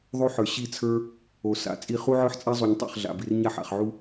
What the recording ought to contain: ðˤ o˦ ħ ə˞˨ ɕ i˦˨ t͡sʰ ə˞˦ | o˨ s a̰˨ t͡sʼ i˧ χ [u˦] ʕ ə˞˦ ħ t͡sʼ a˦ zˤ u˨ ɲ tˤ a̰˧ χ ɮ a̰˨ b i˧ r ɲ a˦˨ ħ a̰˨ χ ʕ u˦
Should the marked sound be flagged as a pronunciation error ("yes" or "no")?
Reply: no